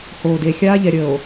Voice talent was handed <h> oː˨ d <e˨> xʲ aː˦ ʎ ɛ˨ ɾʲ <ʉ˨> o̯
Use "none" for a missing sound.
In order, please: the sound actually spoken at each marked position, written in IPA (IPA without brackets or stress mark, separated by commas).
h, e˨, ə˨